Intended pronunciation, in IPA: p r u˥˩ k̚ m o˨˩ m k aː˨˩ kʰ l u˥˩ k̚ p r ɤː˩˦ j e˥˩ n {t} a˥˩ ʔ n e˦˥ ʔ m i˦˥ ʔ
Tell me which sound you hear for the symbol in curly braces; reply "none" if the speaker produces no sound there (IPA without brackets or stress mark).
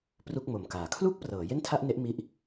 tʰ